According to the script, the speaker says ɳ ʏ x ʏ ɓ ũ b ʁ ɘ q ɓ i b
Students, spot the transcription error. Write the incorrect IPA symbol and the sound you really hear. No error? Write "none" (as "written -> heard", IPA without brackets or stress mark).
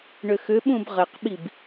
none